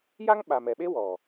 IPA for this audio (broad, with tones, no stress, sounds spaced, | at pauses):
j a˦ ŋ ɓ a˨ m ɛ˨ ɓ e˦ w ɔ˨